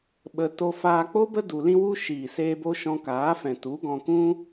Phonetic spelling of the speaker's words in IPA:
ɓə˧ to˧faː˧k͡po˦bə˦ du˧lĩ˦wu˦ ʃiː˨seː˧bo˧ ʃɔ̃˧kaː˨˦fɛ̃˨tu˨˦ ɡɔ̃˧kũ˦

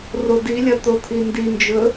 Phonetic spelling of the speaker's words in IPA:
rodilʲɐ t̪ot̪ʰindind͡ʒɵ

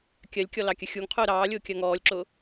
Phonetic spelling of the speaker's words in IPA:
kʲɜlʲkʲɔlɑkʲə xʲuŋqʰʊː ɾɑːlʲʊːkʲɜ ŋɔːlʲǁʊː

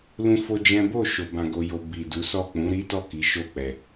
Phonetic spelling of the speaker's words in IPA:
lũ˦fo˦d͡ʒɛ̃˦ bo˦˨ʃo˨ bã˧ɡo˧jo˧ bi˨du˨˦sɔ˦˨ k͡pũ˨˦ɾi˦tɔ˦˨ ki˨˦ʃo˦˨k͡pɛ˨

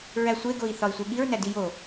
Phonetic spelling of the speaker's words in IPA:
ɹæsʷeɡoi̯ θɒi̯sʷeɠiɹ nædijo

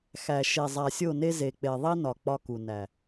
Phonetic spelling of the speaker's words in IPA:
xæ˨ʃe˨ zˤæ˨sʲo˦˨ne˦ ze˨k͡pe˨ðˤi˦nɒ˨ k͡pɒ˦ku˨ næ˨

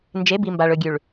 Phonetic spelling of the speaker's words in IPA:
nd͡ʒe˨˦bi˨ mba˨ɭɵ˨ɡʲʉ˨ɭ

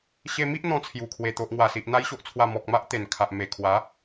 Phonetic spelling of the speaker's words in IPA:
ɕe˧mi˦ʔ n̪ɔ̃˧t͡sʰju˨˩kʰwe˨˩ t̪o˨ʔŋwa˨˩si˨ʔ n̪a˧jɕo˨ʔt͡sʰwa˨˩ mɔ˨k̚ma˦ʔ t̪e˨˩nkʰa˨ʔ me˨˩kʰwa˨˦

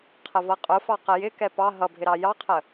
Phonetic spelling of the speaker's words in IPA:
qʰəvʌqʼʊfɑ qəjɪkɛ pɑ ɦʌbʱɪ ɾɑjɑqʰə

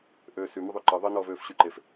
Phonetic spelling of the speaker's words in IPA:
ʔøːsy məðˤyǃɤ ðˤə nɔːvøːfɕyǃef

